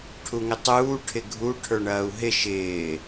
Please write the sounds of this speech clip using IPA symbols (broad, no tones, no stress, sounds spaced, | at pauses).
ʈʰ u ŋ ɪ tˤ uː ʈʰ ɪ ɡʱ u ʈʰ ə˞ ɳ ɐː u̯ ɦ ɪ ʃ ɪː